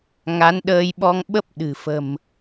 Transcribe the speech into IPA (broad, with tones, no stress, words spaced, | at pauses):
ŋa˨˦nɗəː˧jɓɔ˧ŋɓə˦˥p̚ ɗɨ̤˨˩ fə̤˨˩m